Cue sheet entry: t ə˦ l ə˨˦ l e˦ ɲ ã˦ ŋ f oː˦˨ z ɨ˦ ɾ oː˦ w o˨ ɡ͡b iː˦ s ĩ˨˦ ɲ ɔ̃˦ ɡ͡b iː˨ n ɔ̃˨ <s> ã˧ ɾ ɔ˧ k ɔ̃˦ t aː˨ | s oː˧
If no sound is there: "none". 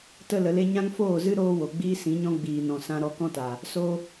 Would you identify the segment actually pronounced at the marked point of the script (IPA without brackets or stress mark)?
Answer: s